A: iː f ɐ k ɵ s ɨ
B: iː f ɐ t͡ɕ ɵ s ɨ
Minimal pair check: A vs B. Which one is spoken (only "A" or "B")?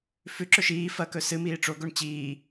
A